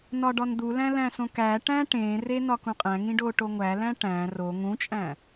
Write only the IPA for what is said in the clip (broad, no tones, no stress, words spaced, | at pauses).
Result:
nɒɖɒnd̪ulæ̃ læ̃sõkæʈæ̃ ʈẽre nɒkũqʼæ̃ŋĩ ɖoʈoŋʷælæ̃ ʈæ̃ ro ŋũt͡ʃʼæ̃